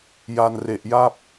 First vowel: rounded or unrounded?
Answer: unrounded